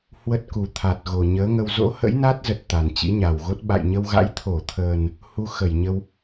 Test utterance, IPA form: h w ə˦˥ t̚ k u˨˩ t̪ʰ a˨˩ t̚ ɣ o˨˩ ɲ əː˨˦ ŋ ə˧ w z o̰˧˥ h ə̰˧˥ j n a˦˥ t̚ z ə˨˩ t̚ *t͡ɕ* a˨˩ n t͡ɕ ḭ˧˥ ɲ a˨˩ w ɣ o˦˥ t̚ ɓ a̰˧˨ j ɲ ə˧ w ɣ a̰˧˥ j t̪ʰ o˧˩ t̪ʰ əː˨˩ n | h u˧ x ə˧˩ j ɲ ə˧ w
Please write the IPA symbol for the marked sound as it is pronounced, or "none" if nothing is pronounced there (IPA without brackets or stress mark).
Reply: t̪